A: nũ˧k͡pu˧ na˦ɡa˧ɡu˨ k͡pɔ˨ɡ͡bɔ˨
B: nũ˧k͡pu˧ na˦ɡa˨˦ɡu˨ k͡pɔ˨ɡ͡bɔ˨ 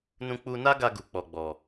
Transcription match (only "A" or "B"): A